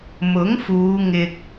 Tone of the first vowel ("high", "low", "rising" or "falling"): rising